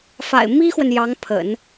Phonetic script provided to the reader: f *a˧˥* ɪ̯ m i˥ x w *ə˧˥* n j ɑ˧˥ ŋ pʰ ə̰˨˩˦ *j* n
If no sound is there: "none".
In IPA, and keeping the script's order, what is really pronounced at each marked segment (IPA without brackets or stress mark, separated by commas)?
a̰˨˩, ə˨, none